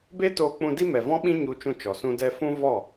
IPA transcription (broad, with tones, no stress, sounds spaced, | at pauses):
b e˦ t oː˧ k͡p ũ˧ d i˦ m ɛ˨ v ɔ̃˦ ɓ ĩ˦ ɲ u˧ t͡ʃ ũ˧ t͡ʃ ɔ˨ s ũ˧ d ɛ˧ f ũ˦ v ɔ˦˨